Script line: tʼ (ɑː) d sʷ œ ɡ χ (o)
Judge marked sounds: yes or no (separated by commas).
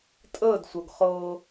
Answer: no, no